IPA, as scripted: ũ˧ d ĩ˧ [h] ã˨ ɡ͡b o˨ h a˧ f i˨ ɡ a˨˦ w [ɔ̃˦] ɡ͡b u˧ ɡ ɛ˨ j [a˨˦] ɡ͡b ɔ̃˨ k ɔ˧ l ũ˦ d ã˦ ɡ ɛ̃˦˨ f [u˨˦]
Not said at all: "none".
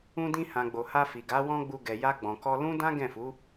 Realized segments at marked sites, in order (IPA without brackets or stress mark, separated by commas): h, ɔ̃˦, a˧, u˨˦